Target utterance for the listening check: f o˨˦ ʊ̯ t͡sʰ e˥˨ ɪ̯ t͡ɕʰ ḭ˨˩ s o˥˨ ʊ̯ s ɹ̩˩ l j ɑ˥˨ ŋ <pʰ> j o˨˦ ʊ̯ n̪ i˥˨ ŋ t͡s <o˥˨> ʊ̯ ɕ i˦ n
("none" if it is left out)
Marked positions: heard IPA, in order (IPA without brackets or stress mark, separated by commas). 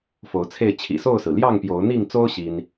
p, o˦